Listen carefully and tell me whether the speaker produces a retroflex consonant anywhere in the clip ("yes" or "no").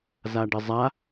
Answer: yes